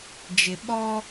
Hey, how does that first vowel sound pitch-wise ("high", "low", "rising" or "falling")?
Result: low